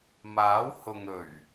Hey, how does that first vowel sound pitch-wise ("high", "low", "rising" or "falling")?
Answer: rising